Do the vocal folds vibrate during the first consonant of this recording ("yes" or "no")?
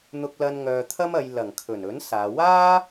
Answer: yes